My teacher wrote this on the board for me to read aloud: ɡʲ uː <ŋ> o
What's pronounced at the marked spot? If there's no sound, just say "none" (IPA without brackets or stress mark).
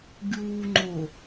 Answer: ŋ͡ǃ